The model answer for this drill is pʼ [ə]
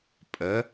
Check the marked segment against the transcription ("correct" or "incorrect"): correct